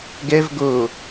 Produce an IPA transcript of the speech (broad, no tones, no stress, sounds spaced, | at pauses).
ɡ ɛ v ɡ o